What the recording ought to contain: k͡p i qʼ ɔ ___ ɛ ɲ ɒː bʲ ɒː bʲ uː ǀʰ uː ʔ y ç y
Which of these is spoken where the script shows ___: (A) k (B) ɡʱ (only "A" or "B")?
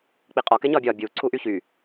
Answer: A